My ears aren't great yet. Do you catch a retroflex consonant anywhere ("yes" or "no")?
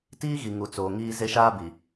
no